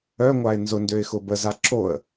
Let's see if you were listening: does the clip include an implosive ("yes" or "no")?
no